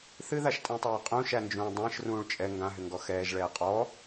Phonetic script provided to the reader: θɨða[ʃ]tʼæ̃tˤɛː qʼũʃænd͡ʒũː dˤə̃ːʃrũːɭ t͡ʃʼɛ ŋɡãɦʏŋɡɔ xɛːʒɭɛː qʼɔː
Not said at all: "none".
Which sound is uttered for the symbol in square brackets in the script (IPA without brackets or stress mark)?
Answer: ʃ